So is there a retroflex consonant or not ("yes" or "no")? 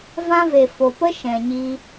no